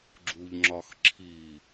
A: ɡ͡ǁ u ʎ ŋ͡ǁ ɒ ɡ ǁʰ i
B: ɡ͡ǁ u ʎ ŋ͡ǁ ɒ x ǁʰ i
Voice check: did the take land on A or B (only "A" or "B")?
B